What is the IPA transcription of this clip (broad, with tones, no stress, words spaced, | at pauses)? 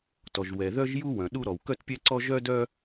tɔ˩ʒwɛ˩ ðœ˥ʒju˥ wœ̃˩ɗu˥ ɾɔ˩wkœ˥tpʲɛ˥ǀɔ˥ ʒœ˥dœ˥